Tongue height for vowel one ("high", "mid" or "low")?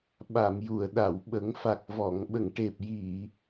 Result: low